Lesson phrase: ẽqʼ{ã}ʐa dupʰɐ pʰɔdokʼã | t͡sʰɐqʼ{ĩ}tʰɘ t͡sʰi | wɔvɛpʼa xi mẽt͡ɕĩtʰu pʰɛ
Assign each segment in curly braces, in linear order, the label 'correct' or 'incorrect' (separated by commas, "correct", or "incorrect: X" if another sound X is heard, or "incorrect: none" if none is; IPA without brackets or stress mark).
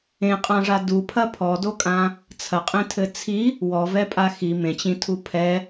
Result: correct, incorrect: ẽ